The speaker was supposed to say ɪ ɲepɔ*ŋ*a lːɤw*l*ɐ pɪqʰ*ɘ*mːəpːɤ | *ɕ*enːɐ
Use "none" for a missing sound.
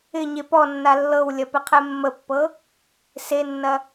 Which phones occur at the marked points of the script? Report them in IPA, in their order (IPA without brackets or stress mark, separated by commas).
nː, lʲ, ɛ, s